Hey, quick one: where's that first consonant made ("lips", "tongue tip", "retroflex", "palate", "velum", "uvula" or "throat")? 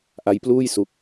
throat